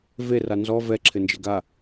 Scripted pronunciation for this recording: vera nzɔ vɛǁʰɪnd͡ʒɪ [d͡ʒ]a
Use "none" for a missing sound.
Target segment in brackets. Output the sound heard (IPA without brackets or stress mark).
ɡ